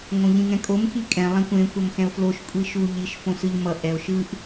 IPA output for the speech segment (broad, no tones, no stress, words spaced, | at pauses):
ŋõʎĩŋɛ̃kʼom kikʼɛ̃ lˠẽkʷẽ kʷʌmxɛ̃o̯floʃ kʷʼiʃu ʎiʃ fõsɯʎmʌ ʔɛo̯ʃɯʔ